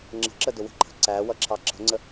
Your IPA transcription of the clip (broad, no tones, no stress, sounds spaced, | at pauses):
ŋ͡ǁ ə̤ ǁ ə d ʊ w ə̤ ǃʰ ə̤ ǀ æ w ʌ ǁʰ ɑ ǁ ə̤ ŋ͡ǀ ə